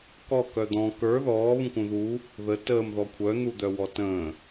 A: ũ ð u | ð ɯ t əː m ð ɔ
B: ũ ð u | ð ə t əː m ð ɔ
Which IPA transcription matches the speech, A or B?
B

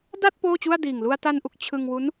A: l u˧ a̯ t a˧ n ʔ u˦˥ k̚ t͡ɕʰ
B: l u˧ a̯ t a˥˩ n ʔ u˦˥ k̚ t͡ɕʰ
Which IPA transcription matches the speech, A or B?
A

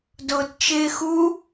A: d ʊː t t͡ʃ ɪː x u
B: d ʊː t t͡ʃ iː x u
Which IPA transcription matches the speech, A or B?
A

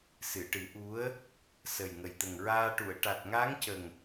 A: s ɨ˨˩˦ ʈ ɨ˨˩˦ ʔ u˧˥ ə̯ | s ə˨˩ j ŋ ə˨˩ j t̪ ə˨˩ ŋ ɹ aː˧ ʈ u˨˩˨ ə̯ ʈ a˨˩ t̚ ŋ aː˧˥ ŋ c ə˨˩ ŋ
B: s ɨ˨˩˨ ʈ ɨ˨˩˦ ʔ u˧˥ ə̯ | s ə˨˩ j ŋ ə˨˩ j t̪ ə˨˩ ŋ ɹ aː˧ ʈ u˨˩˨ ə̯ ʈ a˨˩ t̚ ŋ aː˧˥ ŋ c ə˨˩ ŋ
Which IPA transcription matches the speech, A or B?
B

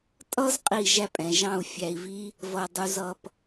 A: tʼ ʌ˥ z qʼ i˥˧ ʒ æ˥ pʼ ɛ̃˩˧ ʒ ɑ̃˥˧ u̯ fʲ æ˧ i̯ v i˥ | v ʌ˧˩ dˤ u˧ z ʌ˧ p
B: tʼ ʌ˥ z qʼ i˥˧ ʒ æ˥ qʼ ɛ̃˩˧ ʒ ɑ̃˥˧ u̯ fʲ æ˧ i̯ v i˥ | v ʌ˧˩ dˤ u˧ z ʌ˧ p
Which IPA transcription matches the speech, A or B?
A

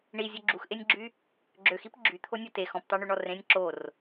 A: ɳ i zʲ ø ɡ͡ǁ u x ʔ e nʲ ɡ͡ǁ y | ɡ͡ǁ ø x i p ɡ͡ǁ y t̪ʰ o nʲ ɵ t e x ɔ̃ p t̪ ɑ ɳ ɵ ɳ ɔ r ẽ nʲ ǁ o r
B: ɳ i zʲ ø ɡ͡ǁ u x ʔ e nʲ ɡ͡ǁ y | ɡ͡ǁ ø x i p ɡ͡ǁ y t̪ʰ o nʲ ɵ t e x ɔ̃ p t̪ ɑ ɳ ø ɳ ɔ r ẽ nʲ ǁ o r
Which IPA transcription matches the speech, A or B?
B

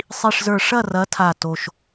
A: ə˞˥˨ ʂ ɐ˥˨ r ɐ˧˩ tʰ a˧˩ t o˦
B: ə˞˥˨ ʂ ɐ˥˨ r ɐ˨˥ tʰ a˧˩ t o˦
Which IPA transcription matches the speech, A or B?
B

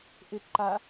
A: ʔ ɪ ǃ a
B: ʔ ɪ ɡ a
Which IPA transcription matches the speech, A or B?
A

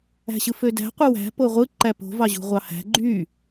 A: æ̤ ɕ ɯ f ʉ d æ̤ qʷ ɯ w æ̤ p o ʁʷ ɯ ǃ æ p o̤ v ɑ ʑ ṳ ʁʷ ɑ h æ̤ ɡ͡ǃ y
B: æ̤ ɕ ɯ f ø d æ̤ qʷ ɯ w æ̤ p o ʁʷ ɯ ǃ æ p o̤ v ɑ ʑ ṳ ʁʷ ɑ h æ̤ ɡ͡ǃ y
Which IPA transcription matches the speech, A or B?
B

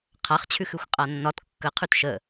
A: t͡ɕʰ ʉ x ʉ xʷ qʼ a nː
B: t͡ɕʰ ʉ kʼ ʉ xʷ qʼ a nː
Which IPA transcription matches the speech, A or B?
A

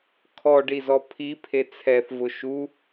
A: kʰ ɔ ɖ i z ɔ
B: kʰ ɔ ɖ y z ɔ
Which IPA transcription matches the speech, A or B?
A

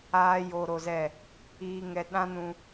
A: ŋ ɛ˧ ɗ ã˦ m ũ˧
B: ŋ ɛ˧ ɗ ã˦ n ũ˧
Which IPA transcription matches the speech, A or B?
B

